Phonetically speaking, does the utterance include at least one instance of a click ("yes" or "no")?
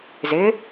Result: no